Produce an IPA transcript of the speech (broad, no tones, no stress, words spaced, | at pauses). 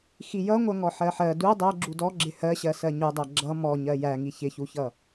xijʌŋʷɜŋɔ ħɜħɜ du dˤɜ ɡ͡ǁudɔɡ͡ǁɪ hɜɕɜ sɜɲudˤæ ɡ͡ǁʌ mɔɲɜ jæ ŋiçɪçuçʌ